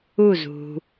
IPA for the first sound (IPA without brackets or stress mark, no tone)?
u